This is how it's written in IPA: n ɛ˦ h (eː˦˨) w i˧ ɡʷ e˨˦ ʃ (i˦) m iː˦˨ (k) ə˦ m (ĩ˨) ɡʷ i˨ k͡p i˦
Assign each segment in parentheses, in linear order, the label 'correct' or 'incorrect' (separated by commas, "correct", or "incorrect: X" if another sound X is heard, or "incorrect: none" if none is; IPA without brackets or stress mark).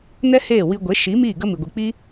correct, incorrect: i˨˦, incorrect: ɡ, incorrect: i˨